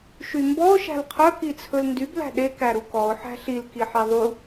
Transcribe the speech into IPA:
ʃ y m b ɔ ʊ̯ ʃ æ̤ l qʰ œ k i t͡sʰ ɵ l n d y b l æ̤ ɗ e k æ ɾ u k ɔ ʊ̯ ħ æ̤ ɬ i l k i ħ i ðˤ u

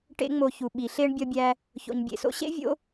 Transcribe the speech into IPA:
ʈ ḛ˥ ŋ͡m o˦ ç u˨ ɓ i˨ ɬ e˦ ɳ bʲ ɒ˦ bʲ æ˦ | ç o̰˨ ɲ bʲ ḛ˨ s o̰˦ ɕ ḛ˥ vʲ o̰˥

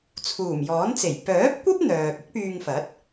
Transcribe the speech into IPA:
t͡sʰ uː˨˩ m j ɔː˨˥ n t͡s e˨˩ j p œː˨˥ p̚ kʷ ɐ˥ p̚ n̪ œː˨ k̚ ɪ˥ k̚ p yː˧ ŋ f ɐ˨˥ t̚

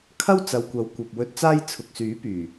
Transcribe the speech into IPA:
kʰ ɐ˥ w t͡s ɐ˨ w kʷ ɐ˨˥ w kʷ ɐ˨ p̚ w ɵ˧ t̚ t͡s aː˥ j t͡sʰ ʊ˨ k̚ s yː˨˥ p yː˨˩

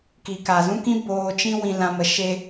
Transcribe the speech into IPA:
k i˨ k a˨ z ũ˧ k ĩ˧ b oː˧ t͡ʃ ĩ˦ w ĩ˧ l ã˧ m ə˧ ʃ e˦

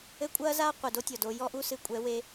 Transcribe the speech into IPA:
ɘ˦ kʷʼ ɐː˦ z a˦ qʷ i˨ d o˦ tʲ ɔ˨ d o˧ j ɔ˦ ʔ u˦ s ɨ˧ kʷʼ ɛ˨˦ w e˧

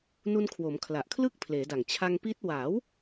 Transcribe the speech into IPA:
n u˧ n kʰ w o˩˦ m kʰ l a˨˩ ʔ kʰ l ɯ˥˩ k̚ pʰ l eː˩˦ d a˨˩ ŋ t͡ɕʰ a˧ ŋ p i˦˥ t̚ w a˩˦ w

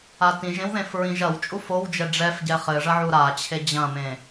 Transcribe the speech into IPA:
a t ĩ ʒ ẽ w ð ẽ f ɹ ĩ ʒ ɐ w t͡ʃʼ u f o w d͡ʒ ɛ ɖ͡ʐ ɛ f ɟ ɛ χ ɘ ʐ ɐ ʕ u ɾ a t͡ɕʰ e d͡ʑ ɐ̃ m ẽ

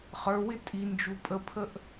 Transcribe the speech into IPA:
χ ə˞ w ɪ tʼ i n d͡ʒ u pʼ ə pʰ ə ʔ

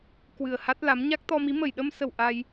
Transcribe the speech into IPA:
k w ɨ˨˩ ə̯ h a˦˥ t̚ l a˨˦ m ɲ a˦˥ k̚ t̪ ɔ˧ m i˨˦ m ə˧˩ j ɗ ə˧ m s ə˧˩ w ʔ a˧ j

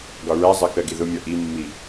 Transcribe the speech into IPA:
ɡ ɒ ɹ æ zˤ ɜ k ɜ ɡ i ð ʊ mʲ ɒ ʔ i mː i

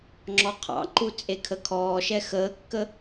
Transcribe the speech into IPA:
ŋ͡ǁ ɔ qʰ ɑ̰ ǃ u t͡sʼ e kʰ ə kʰ ɔː ʃ ɛ x əː kː ə

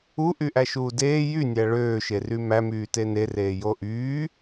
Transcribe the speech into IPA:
u ʔ y ʔ æ ʃ uː d eː j y nʲ æ ɭ øː ʃ e r y m æ m yː t e n e r eː j o ʔ yː

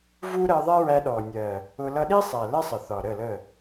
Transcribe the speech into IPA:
v u˦ ɾ ɜ˧ ðˤ ɛ˦ ɹ æ˧ ɗ ɔ˨ nʲ ɜ˨ | ʊ˧ l ʌ˧ ɗ i˦ sˤ æ˨ l ɛ˦ sˤ ə˨ θ ɒ˨ ɾ ə˦˨ l ə˦˨

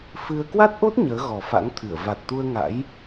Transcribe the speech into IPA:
f ɨ˧ ə̯ k w a˦˥ t̚ ʔ o˦˥ t̚ ɲ əː˨˦ ɣ ɔ˨˩ f a̰˧˥ ŋ t̪ʰ ɨ˧˩ ə̯ v a˨˩ t̚ t̪ u˧ ə̯ ŋ a̰˧˥ j

